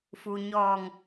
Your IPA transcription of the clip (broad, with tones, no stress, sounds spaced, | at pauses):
f u˩ ɲ ɔː˧˩ ŋ